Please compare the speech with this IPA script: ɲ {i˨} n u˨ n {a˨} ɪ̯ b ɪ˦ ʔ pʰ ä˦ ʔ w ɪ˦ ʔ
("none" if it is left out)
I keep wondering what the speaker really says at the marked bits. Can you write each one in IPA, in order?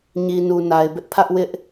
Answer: i˨, a˨

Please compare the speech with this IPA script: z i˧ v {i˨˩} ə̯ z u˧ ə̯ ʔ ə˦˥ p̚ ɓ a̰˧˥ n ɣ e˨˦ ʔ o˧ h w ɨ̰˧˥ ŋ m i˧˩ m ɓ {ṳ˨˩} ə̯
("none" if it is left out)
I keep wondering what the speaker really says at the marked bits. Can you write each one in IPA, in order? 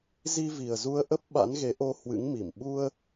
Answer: i˨˩, u˧

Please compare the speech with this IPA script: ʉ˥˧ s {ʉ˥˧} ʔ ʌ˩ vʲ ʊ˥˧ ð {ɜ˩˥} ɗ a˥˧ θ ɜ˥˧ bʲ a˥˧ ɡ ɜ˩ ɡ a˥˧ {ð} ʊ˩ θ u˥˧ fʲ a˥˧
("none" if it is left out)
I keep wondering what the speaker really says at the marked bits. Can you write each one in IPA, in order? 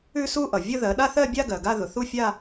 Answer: u˥˧, ɜ˩˥, ð

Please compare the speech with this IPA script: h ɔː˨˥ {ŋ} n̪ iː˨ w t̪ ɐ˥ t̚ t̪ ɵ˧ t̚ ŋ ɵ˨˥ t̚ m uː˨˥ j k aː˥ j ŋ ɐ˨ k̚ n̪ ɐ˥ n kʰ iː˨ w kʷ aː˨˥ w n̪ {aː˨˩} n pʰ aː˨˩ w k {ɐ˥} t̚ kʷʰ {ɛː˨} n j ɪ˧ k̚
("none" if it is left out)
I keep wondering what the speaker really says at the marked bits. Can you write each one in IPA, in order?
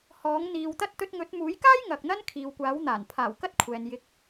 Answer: ŋ, aː˨˩, ɐ˥, ɛː˨

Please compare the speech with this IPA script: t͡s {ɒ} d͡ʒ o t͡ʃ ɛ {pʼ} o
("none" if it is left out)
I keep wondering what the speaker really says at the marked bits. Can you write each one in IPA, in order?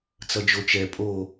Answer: ʌ, pʼ

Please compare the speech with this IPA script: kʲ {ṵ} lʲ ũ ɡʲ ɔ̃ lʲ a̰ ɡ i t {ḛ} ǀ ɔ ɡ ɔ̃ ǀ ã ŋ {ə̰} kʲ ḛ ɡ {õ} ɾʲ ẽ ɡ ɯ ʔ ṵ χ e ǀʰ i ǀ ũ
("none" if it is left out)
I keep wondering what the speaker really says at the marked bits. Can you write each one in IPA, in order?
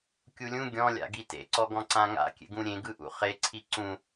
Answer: u, ḛ, a̰, ũ

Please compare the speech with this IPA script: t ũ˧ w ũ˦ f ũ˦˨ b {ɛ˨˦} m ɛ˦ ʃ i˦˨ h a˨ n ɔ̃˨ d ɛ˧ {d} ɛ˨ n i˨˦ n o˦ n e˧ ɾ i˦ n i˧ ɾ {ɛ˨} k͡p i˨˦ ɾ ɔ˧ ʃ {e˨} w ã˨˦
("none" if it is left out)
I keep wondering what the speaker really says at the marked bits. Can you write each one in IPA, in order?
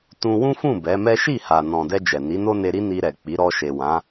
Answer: ɛ˨˦, d͡ʒ, ɛ˨, e˨

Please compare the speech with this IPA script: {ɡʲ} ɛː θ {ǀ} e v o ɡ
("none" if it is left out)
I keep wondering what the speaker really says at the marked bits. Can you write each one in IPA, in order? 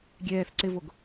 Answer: ɡʲ, ǀ

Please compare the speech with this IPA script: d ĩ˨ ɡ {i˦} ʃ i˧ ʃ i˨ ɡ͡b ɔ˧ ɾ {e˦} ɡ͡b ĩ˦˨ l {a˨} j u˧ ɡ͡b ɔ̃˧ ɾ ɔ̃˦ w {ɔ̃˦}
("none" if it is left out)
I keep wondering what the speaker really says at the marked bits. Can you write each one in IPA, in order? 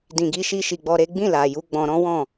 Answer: i˧, e˦, a˨, ɔ̃˦˨

